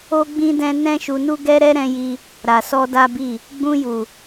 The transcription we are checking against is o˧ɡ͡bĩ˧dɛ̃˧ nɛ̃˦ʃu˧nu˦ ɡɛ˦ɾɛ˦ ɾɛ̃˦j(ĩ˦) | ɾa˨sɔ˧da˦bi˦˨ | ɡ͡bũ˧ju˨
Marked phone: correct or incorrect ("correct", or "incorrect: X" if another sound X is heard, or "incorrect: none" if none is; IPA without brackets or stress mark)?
incorrect: i˦